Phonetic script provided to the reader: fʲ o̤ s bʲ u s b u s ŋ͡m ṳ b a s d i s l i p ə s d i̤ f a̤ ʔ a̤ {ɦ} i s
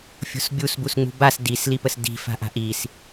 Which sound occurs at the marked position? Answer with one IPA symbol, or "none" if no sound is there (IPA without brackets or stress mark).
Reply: ʔ